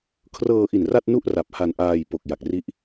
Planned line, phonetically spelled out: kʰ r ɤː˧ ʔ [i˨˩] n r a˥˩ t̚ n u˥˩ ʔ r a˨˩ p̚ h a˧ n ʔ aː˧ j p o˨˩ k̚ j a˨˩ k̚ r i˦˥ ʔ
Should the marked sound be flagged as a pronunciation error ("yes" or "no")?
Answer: no